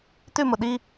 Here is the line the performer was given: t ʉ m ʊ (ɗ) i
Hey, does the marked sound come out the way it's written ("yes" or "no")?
yes